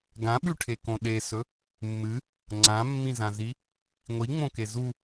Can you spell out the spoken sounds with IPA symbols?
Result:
ɡ ã ɓ ʉ ʈʰ e k õ ɗ e s ɵ | mː ɨ | ŋ͡ǀ ã mː ĩ z ã z i | ŋʷ i ŋ͡m õ k e z u

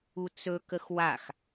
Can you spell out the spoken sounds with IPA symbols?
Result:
u t͡s ɵ k ə x w a x

